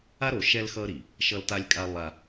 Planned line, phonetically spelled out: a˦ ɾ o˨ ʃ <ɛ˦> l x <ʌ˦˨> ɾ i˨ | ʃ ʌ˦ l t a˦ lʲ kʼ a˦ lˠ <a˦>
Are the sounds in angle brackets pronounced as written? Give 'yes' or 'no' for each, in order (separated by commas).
yes, no, yes